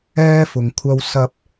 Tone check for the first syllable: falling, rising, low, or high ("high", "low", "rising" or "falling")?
high